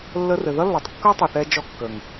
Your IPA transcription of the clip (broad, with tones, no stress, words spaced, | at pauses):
lːə˧rɘ˨ðʌ˦lːɒ˨tˤ kːʌ˦tˤu˨θɛ˧ d͡ʒɔ˧kːə˨ŋ